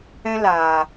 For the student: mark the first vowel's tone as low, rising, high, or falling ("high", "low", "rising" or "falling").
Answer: high